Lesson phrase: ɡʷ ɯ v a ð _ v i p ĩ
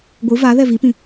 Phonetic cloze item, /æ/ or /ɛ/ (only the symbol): ɛ